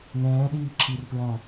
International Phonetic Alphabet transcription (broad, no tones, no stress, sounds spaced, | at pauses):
n ɛ̃ː ɗ iː ǁ i r p ɹ ɔ̃